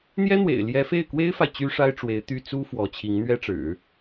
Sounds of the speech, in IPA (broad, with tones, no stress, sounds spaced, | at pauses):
n̪ j ɛ˥ n̪ w ḛ˨˩ ɪ̯ l j ɛ˧˥ f e˥˩ ɪ̯ k w e˥ ɪ̯ f a˨ ɪ̯ t͡ɕ y˥ ʂ a˥ ɪ̯ ʈ͡ʂ w e˧˥ ɪ̯ t̪ y˥˩ t͡s u˥ f w ɔ˧˥ t͡ɕʰ i˧˥ ŋ n̪ ɥ ɛ˥ ʈ͡ʂ ɻ̩˨˩˦